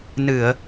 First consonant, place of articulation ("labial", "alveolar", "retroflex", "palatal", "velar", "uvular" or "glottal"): alveolar